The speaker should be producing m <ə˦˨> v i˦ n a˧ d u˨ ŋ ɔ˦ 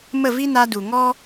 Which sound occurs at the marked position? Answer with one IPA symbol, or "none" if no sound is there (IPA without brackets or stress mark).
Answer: ə˦˨